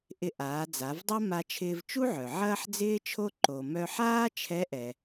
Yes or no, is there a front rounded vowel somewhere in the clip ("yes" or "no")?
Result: yes